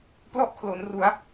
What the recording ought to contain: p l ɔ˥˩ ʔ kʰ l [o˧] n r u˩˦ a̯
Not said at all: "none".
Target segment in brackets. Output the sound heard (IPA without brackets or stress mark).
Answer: o˩˦